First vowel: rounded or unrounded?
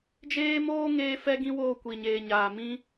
unrounded